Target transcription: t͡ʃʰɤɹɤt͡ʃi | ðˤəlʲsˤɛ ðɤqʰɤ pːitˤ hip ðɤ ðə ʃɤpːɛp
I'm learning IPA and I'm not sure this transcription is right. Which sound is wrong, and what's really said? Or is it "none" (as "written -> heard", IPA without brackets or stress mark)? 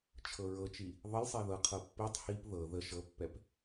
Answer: none